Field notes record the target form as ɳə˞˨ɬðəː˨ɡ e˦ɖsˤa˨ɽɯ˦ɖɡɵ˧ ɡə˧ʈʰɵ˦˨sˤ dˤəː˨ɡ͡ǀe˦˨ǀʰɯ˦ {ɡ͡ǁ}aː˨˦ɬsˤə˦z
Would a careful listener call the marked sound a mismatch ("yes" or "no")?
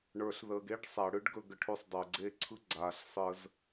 yes